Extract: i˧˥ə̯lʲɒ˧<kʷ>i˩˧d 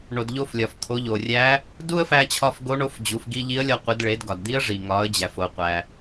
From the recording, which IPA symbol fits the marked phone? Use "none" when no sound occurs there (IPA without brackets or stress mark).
qʷ